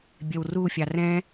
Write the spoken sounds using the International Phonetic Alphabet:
bʲɛwrufʲɑ rɛ̃

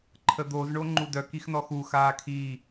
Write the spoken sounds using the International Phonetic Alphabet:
ǃʰəd̪oz ɳoŋ͡ǃudœ kixnɔxuːx aːkʰi

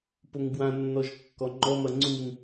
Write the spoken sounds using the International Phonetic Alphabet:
poŋbwãnːɔʒ kːɔŋ͡ǃɔmɐ ŋ͡ǀuŋ

